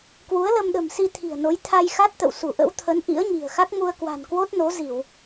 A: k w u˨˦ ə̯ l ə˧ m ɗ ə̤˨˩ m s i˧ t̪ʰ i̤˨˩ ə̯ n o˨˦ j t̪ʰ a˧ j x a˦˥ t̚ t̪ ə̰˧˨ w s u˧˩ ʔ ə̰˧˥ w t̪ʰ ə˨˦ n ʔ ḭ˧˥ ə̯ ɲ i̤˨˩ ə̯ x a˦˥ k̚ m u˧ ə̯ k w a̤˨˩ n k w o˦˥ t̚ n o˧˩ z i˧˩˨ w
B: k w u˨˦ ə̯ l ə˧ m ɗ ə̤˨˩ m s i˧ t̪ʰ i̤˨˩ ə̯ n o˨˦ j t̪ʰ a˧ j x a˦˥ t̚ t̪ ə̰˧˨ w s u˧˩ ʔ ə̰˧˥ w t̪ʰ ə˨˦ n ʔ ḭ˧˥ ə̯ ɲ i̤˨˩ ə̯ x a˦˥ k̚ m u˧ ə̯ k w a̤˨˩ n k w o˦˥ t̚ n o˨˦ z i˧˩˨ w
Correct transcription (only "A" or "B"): B